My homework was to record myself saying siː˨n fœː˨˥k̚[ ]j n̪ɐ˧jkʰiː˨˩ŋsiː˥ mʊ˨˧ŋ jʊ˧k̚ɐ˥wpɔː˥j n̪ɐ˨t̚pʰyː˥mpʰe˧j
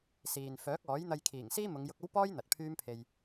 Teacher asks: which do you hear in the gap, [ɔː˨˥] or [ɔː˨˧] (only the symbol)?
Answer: ɔː˨˥